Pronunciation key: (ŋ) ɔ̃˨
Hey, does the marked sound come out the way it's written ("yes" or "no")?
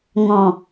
yes